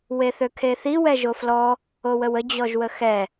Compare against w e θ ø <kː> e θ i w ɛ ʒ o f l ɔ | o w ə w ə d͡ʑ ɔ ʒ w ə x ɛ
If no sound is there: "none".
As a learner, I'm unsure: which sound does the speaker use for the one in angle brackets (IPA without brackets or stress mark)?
kʰ